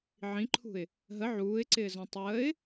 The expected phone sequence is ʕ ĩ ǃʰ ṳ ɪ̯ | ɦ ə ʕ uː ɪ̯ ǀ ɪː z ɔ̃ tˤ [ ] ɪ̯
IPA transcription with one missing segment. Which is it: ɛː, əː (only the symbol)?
əː